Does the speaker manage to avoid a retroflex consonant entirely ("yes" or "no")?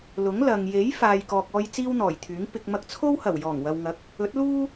yes